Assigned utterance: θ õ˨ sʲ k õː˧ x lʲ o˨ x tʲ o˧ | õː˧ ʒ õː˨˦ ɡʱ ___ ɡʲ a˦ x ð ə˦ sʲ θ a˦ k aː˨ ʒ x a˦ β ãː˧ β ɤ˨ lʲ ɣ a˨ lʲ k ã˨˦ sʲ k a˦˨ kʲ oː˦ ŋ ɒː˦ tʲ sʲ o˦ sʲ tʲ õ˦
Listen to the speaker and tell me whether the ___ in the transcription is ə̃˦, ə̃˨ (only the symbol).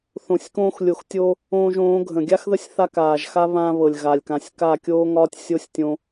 ə̃˨